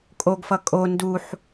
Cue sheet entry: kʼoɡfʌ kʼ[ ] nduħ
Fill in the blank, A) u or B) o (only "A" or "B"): B